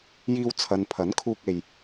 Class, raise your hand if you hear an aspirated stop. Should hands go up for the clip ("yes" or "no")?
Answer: yes